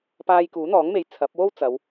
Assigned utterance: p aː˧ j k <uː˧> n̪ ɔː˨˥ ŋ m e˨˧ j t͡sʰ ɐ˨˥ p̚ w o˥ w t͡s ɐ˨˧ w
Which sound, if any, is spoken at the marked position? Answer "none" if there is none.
uː˨˥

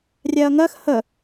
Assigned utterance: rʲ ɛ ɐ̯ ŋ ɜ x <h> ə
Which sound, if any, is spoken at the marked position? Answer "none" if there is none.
h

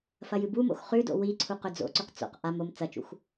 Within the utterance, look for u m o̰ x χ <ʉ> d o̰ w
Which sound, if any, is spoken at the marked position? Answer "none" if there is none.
ʉ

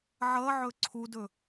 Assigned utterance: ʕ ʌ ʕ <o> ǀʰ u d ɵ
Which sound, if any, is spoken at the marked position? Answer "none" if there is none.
ɵ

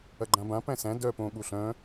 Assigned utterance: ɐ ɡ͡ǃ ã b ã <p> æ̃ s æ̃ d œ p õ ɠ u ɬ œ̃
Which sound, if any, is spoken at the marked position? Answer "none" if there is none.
p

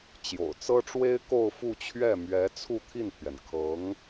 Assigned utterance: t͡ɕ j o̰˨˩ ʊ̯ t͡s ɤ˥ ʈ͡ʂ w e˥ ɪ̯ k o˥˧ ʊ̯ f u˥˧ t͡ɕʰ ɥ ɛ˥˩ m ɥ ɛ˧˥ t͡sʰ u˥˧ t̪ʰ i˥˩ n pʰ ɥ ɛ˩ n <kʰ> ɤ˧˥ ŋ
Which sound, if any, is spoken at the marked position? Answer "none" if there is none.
kʰ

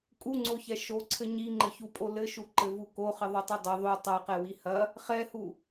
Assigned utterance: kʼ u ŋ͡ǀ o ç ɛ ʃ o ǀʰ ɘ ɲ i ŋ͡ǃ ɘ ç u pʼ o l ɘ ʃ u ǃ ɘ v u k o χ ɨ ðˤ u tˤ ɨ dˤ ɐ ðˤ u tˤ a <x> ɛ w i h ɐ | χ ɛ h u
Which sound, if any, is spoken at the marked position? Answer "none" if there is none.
q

